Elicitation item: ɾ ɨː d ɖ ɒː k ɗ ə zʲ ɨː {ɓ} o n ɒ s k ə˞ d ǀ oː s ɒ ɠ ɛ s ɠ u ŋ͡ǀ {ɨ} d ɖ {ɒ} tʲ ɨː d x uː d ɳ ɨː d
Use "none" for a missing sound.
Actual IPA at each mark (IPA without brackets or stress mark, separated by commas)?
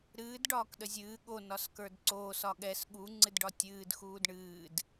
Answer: ɠ, ɨ, ɒ